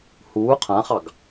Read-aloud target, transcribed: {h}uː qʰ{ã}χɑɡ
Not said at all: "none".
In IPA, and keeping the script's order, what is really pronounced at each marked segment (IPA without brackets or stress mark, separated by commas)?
h, ã